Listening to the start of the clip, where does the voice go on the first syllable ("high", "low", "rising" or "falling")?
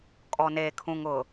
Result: low